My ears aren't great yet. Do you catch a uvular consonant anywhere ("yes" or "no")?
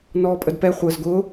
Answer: yes